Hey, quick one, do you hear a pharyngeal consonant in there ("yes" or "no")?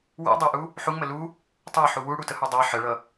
yes